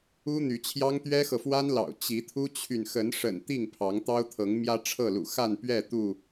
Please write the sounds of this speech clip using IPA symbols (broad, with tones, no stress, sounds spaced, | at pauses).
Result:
u˦ n̪ y˨˦ t͡ɕʰ j ɑ˦ ŋ t̪ ɥ ɛ˦ x ɤ˨ f w a˦ n l ɑ̰˨˩ ʊ̯ t͡ɕ i˨˦ t̪ʰ u˦ t͡ɕʰ y˨ n x ə˨˦ n ʂ ə̰˨˩ n t̪ i˥˨ ŋ pʰ ɑ˨˦ ŋ t̪ ɑ˦ ʊ̯ t̪ʰ ɤ˨˦ ŋ m j ä˦ ʈ͡ʂʰ ɤ˥˨ l ṵ˨˩ x a˥˨ n p ɥ ɛ˥˨ t̪ u˥˨